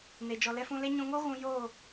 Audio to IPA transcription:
ne˨ d͡ʒɔ˨lɛ˧fũ˧le˦ ɲũ˧ŋo˦ ɣũ˦ joː˦˨

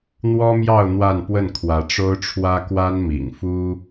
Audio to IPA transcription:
n̪wɔ˥mjɑ˥˧ʊ̯ n̪wa˥˧npwə˥˩nkʰwä˧˥ ʈ͡ʂo˥ʊ̯ʈ͡ʂʰwä˥ kwa˥nmḭ˨˩ŋfu˥

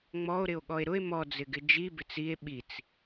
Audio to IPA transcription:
ŋ͡mɔo̯ɾɪo̯ ɠɔe̯ɾʊe̯ mɔd͡zɪɡɪ d͡ʒi bɪt͡sie̯ ɓit͡s

